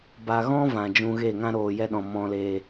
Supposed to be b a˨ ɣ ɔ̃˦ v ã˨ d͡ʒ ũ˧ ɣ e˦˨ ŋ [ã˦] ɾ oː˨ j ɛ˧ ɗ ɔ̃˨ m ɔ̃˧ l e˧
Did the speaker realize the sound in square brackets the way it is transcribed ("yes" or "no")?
yes